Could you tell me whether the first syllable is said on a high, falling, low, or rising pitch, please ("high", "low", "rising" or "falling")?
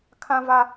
high